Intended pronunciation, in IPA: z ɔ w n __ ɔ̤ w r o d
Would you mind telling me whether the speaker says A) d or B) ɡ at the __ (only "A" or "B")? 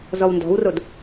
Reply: A